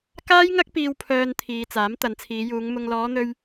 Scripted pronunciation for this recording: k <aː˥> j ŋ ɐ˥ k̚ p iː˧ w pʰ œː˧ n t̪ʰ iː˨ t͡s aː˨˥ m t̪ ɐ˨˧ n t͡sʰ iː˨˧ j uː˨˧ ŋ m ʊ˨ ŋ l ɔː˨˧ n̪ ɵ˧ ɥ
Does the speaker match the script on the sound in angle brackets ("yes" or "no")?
yes